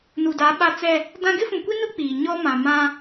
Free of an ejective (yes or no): yes